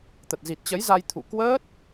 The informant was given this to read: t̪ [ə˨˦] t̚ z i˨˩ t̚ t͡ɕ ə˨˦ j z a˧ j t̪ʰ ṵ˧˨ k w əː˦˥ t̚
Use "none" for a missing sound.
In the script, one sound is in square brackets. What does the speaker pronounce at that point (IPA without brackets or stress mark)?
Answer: ə˨˩